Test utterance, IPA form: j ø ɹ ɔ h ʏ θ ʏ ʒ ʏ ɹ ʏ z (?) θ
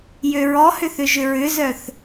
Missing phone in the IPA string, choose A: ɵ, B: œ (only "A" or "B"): B